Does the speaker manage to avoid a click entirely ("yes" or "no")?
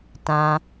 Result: yes